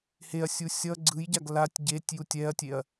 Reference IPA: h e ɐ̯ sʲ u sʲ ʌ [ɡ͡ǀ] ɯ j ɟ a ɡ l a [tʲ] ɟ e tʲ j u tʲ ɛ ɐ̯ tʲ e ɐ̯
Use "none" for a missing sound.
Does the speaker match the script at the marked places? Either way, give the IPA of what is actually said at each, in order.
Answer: ɡ͡ǀ, tʲ

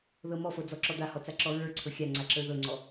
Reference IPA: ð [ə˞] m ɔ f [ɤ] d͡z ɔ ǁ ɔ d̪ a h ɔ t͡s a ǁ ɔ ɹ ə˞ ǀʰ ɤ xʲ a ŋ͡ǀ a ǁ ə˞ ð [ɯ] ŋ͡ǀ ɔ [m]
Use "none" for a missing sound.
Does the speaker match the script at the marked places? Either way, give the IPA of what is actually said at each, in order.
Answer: ɤ, ɤ, ɤ, none

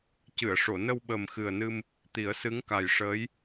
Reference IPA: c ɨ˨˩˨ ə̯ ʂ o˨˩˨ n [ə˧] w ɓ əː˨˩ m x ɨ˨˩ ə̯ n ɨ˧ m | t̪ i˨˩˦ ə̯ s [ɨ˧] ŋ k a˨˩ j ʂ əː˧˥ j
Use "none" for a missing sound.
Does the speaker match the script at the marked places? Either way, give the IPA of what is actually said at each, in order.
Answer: ə˧, ɨ˧˥

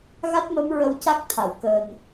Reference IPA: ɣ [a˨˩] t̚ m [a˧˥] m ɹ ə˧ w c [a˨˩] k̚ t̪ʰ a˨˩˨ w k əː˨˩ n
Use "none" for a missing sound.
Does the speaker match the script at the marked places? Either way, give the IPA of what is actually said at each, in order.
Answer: a˦˥, ə˧˥, a˦˥

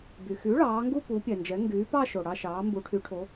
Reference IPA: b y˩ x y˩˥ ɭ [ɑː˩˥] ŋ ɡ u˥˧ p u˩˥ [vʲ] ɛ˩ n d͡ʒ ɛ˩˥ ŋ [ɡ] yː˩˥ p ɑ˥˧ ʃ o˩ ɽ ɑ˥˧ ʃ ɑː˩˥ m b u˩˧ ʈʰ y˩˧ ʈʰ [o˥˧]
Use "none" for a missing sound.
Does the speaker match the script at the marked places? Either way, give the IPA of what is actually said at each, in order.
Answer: ɑː˩˧, pʲ, ɡ, o˩˧

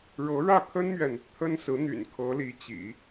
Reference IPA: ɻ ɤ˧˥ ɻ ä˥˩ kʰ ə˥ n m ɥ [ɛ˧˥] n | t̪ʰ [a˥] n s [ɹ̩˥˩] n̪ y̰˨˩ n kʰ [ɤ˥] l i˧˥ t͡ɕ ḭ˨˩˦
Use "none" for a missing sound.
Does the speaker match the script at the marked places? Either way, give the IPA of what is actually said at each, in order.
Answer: ɛ˨, ə˥, ɹ̩˧˥, ɤ˧˥

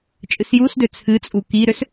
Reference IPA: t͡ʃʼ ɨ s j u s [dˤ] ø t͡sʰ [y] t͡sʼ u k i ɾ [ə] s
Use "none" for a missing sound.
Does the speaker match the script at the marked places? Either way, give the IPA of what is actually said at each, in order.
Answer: d, ɨ, ø

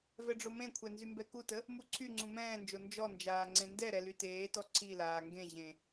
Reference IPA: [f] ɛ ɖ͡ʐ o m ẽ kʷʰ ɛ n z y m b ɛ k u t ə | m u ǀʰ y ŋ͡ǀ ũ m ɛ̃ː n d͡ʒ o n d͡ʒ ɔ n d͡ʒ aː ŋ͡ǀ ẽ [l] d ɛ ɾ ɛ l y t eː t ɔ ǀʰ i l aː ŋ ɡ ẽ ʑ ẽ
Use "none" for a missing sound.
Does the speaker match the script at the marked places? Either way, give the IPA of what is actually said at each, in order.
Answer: v, n

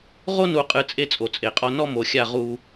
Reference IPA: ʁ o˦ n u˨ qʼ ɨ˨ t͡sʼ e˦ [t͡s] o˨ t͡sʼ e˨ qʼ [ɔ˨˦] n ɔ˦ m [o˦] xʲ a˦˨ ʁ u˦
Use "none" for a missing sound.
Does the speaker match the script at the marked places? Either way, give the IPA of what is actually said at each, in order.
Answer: t͡sʼ, ɔ˦, o˨

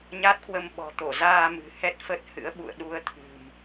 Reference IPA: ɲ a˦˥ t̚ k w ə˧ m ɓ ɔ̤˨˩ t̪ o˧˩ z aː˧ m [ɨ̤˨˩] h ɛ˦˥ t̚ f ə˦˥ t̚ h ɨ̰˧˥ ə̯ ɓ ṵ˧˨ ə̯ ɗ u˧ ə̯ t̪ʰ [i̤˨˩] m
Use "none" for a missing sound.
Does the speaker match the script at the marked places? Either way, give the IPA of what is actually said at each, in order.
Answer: ɨ̤˨˩, ɨ̤˨˩

